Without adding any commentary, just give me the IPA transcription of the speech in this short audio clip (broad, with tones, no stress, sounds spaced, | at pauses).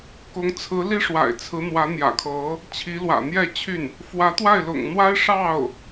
k ʊ˧˥ ŋ t͡sʰ ɹ̩˧˥ l i˥ ʂ w a̰˨˩ ɪ̯ t͡sʰ ɹ̩˧˥ n̪ w ä˧˥ n̪ j ä̰˨˩ kʰ ɤ˧˥ | t͡ɕʰ i˧˥ l w ä̰˨˩ n̪ j ɛ˥˧ t͡ɕʰ y˥˩ n | f w ä˧˥ t̪ w a˥˩ ɪ̯ l ʊ̰˨˩ ŋ n̪ w a˥ ɪ̯ ʂ ɑ˥˩ ʊ̯